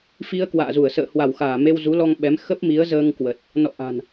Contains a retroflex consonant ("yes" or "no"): no